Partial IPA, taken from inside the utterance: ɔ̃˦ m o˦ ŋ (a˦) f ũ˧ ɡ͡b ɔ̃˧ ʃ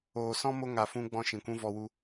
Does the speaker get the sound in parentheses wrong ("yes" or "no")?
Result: yes